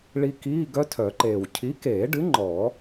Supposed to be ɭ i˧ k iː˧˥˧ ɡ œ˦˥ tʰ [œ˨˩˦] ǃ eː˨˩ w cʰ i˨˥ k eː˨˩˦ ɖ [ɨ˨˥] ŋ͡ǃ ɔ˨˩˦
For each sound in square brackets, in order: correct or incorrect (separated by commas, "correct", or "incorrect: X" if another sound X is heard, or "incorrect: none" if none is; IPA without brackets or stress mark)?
correct, correct